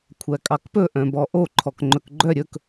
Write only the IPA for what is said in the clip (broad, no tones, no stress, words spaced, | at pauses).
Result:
kʷʰækʼɑkpɵ ʔœ̃bɔʔo ǃʰɔkŋ͡ǃɵkɡ͡ǃœ ɾʲɵk